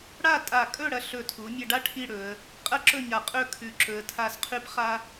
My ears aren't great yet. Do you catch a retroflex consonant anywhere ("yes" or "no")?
yes